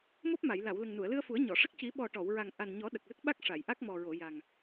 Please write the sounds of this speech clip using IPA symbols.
mo˦˥p̚ma˨˩˨j la˨˩˨w lə˨˩ŋnu˨˩˨ə̯lɨ˧ə̯fu˨˩˦ə̯ ɲɔ˨˩˨ʂə˦˥k̚ ci˨˩˦ɓɔ˨˩ ʈɔ˨˩˨wɹa˨˩ŋ ʔa˨˩nɲɔ˨˩˦ ɗə˨˩k̚lə˦˥k̚ɓa˦˥k̚ ʂa˨˩˨jʔa˦˥k̚mɔ˨˩ɹo˨˩˨ ja˨˩ŋ

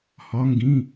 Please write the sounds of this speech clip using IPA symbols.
hɒ˩˧ŋɡĩ˩˧˩

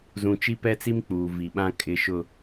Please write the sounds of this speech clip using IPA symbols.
zũ˨t͡ʃi˦pɛ˦t͡si˦m k͡puː˨vi˨ɓã˦ kʼɪ˨ʃʊ˨

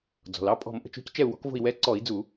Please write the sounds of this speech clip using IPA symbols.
d͡zɔ̤˩lɑ˦˨ pʼɔ̤˧˩˧m ʔə̤˩t͡ʃo̤˨˥c t͡ʃɛ˦˨u̯wɔ̤˨˥kvo̤˦˨i̯ wɛ˨˥ǀɔ˧˩˧i̯d͡zu˧˩˧

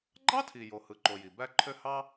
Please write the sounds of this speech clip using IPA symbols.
ɡ͡ǃɑ˥tʰi˩ jo˩hɯ˩ǃo˩ ji˩bæ˥ ǃʰø˥ hɑ˥

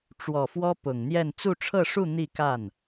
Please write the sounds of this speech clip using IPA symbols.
ʈ͡ʂwɔ˨˩fwɔ˥ pʊ˨˩ŋn̪jɛ˥˧n t͡su˥˧ʈ͡ʂʰɤ˥˧ʂu˥˧ n̪i˥˧ka˥˩n

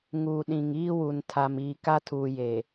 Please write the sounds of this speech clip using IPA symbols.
ŋuː˨ɗĩ˨ŋiː˦wu˨n tʰa˨miː˨ ka˦tʰuː˨jeː˨

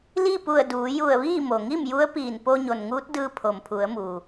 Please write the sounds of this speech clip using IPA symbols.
li˥˨pu˧˩ə̯ duː˩˧ju˧˩ə̯ʋiː˥˨ mo˩ŋi˥˨mju˧˥ə̯piː˧˩n po˧ɲo˩nŋuː˧˥t̚dɯː˧ pʰo˩mpʰu˩˧ə̯muː˩

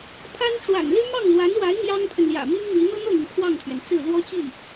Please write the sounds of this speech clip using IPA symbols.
pʰa˥n ʈ͡ʂwa̰˨˩nly˥ mɑ˥˩ŋlwa˧˥nwa˧˥ɪ̯ mjɑ˥ŋpʰə˨nljä̰˨˩ mi˥ŋmi˧˥ n̪ɤ˥n̪ɤ˥˩n̪y˩n kʰwɑ˥˩ŋt̪ʰɥɛ˩nt͡sɹ̩˥˩ lwɔ˥t͡ɕi˥˩

